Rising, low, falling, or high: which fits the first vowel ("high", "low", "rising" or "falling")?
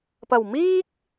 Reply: low